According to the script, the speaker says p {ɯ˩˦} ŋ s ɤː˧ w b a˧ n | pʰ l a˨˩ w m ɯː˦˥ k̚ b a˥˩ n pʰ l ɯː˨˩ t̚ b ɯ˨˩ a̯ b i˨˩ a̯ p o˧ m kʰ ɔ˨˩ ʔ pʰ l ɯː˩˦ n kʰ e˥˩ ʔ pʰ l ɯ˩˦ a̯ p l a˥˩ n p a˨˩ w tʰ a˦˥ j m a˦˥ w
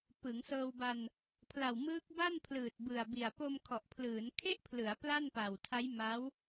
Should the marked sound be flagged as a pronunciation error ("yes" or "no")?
no